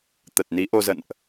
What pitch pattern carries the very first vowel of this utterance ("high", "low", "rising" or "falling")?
low